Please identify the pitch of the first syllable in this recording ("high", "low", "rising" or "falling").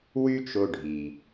high